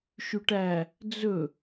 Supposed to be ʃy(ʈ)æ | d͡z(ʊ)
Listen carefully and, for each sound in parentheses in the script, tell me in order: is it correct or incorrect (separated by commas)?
correct, incorrect